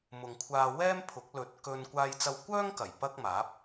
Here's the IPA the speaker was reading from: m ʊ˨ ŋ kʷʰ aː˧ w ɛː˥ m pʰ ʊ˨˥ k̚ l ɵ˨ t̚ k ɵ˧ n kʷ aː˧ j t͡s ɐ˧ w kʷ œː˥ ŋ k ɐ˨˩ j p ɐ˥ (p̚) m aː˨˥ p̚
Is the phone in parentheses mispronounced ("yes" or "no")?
yes